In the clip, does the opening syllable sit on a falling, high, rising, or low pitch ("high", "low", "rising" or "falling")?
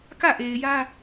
falling